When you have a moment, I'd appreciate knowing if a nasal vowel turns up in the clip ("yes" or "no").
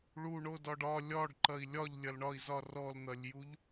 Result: no